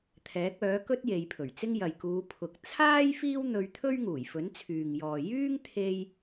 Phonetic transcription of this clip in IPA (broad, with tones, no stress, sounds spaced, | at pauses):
t̪ʰ ɛː˨˥ k̚ œː˨˥ k ɵ˥ t̚ j e˨˧ j pʰ ɵ˨˩ ɥ t͡s ɪ˥ ŋ j ɐ˨ j k uː˨˧ pʰ ʊ˨ k̚ t͡sʰ aː˥ j f iː˥ w n̪ ɵ˧ ɥ t̪ʰ ɵ˥ ɥ ŋ uː˨˩ j f ɵ˨˥ n t͡sʰ yː˨ ŋ j ɔː˨ j yː˥ ŋ t̪ʰ e˧ j